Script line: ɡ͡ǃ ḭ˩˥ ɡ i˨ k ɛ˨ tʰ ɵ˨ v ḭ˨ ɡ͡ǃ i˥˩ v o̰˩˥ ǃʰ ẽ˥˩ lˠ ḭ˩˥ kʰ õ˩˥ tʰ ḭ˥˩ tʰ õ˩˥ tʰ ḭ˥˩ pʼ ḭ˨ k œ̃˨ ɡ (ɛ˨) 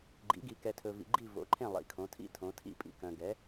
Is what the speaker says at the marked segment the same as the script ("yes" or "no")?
no